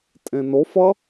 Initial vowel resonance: nasal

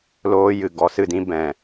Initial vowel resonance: oral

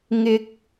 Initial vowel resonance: oral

